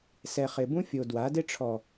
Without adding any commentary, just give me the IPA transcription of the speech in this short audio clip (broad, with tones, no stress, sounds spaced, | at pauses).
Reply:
s ɛ˨ χ ɪ˨ b ũ˦ fʲ o˨ d w a˨˦ d ɪ˦ ʈ͡ʂʰ ɔ˨